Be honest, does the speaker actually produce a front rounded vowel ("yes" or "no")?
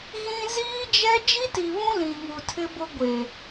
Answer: no